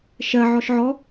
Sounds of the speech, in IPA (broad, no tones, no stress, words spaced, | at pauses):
ʃɜ ʕɔʃʕɔ